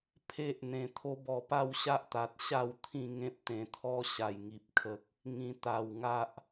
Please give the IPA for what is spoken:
pʰe˦ʔ n̪ẽ˧t̪ʰo˦bɔ˧pa˥˧w ɕa˦ʔt̪a˨t̚ ɕa˥˧w t̪ʰĩ˥˧ŋẽ˦p̚t̪ẽ˧t̪ʰɔ˦ ɕa˨˩jŋi˨p̚kʰə˨k̚ | ŋĩ˧ t̪a˧w ŋa˦ʔ

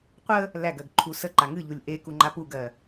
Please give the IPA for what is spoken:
qʷə | læɡɜɡ ǃʰusəǃa ŋɨʎulʲ ʔeku ŋ͡ǃapuɡɜ

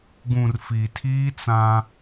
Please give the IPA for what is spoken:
ɡũ˨rfi˨tʰiː˦t͡sã˦

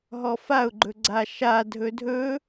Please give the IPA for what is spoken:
ɦɔfaʊ̯ɡ͡ǃɵ ɡ͡ǀaʃadʱɵ dʱɵ

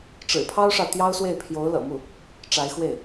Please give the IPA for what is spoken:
ʈ͡ʂɻ̩˨˩pʰɑ˥ʊ̯ʂɑ˨ʊ̯ t̪jɑ˥ʊ̯swe˥˩ɪ̯ pʰjo˧˥ʊ̯lɤ̰˨˩mu˥˩ | ʈ͡ʂa˧˥ɪ̯xwe˥˩ɪ̯

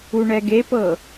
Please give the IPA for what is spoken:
uɳɛɡepɤ

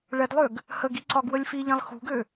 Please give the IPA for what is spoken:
ɭɛdlˠøɡ | həɡi ǀɒɡwəlʲfiʎĩlˠ xṳɡø

